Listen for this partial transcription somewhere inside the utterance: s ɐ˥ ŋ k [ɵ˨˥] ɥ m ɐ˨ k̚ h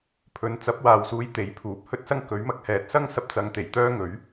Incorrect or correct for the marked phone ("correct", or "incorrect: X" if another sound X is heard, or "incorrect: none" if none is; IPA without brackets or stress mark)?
correct